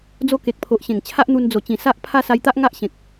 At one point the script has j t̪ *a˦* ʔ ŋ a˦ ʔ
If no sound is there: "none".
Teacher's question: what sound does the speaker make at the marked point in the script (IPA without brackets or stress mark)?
a˦